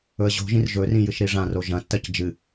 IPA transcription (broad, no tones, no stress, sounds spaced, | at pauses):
ɵ ə̯ ʑ o̤ ʒ ĩ r ʒ ɵ r ĩ j ɨ ʃ ɾ i ʐ ã r o ʒ ɐ̃ tː ɐ c d͡ʒ ɨ